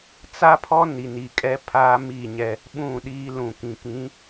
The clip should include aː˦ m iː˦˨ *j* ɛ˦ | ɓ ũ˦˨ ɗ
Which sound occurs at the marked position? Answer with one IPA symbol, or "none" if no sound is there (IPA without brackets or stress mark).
ɲ